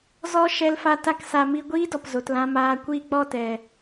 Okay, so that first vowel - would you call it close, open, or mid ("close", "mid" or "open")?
mid